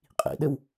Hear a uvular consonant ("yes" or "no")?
yes